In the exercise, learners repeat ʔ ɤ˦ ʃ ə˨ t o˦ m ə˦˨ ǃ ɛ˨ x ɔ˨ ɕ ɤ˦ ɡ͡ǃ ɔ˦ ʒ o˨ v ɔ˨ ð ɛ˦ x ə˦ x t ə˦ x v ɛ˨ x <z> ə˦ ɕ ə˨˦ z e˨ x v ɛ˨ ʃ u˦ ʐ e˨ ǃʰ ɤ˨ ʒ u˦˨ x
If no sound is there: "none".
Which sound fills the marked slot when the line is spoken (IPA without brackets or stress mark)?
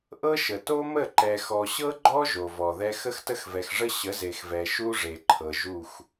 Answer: ʐ